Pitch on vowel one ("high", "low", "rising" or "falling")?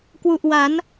low